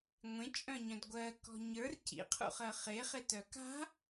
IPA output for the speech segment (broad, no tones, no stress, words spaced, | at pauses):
ŋʷẽt͡ʃʼœ̃ɲœ̃d ɡʷɜkɔ̤ ɲə˞r cḭqʰṵχɜ χeχetœ ka̤